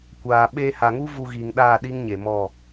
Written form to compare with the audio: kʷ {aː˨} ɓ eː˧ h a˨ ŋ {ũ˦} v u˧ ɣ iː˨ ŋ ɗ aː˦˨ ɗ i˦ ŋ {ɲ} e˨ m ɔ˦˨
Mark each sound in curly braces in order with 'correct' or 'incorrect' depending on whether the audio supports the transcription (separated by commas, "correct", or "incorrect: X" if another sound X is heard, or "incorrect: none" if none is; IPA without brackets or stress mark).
correct, incorrect: u˦, correct